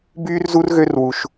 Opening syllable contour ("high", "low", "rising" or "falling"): high